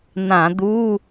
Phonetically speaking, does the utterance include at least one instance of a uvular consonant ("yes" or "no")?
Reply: no